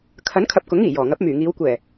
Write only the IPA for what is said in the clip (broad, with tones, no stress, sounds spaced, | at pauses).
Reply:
kʰ ɐ˨˥ n kʰ ɐ˨ p̚ k ʊ˨˥ ŋ iː˨˩ j ɔː˨˩ ŋ ɐ˨˥ p̚ m yː˨˩ ŋ iː˨˧ w kʷ ɛː˨˩